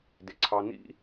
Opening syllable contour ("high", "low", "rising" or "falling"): low